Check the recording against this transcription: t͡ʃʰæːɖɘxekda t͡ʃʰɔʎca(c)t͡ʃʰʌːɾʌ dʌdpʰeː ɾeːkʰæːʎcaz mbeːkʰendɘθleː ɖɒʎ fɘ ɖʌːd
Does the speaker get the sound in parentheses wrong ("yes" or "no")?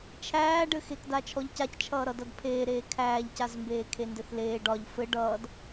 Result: no